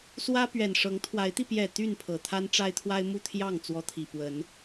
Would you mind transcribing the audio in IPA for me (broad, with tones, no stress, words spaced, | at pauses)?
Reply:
swä˦ pɥɛ˨˩nʂɤ˨˦ŋt̪ʰwa˨˦ɪ̯t̪i˧ pjɛ˥˨ t̪y˥˨n pʰɤ˨˩t̪ʰa˦nʈ͡ʂa˦ɪ̯t̪ʰwa˦ɪ̯ mu˥˨t̪ʰjɑ˥˨ŋt͡swɔ˨˦t̪ʰi˨˩ pwə˨˦n